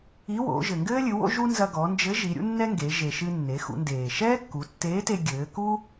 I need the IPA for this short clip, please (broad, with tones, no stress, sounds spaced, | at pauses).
i˧˥ w o̰˩˧ ʒ ɘ˩ ŋ ɡ ɘː˥ lʲ ɨ˩˧ w o̰˥ ʒ u˥ n z ɐ˧ ɡ ɔ˩˧ n d͡ʒ ɘ˧˥ ʒ i˩˧ ɾʲ ṵ˥ nː ɛ˥ ŋ ɡ e˩˧ ʒ e˩ ʃ ɨ˧ nː e˩˧ x ṵ˩˧ n d eː˩ ʃ ɛː˥ kː u˩˧ tː eː˧˥ t e˧ ɡʲ ɘː˩˧ k u˥